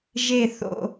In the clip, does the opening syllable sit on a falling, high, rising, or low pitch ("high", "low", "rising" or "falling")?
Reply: falling